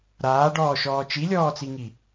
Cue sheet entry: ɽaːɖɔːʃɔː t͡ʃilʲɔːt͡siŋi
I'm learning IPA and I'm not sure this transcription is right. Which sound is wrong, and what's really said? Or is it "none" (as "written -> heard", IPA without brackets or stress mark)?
ɽ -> ɾ